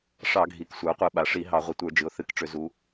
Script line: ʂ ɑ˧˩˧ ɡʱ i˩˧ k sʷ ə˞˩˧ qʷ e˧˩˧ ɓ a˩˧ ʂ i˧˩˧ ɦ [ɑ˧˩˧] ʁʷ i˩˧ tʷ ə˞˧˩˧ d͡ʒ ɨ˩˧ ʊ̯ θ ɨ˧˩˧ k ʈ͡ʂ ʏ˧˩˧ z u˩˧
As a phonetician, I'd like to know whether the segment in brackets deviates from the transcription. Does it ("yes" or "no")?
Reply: no